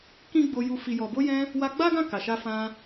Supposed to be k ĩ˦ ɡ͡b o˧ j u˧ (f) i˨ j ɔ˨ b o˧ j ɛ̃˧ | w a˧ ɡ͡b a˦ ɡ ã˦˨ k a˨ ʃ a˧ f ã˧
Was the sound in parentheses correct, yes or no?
yes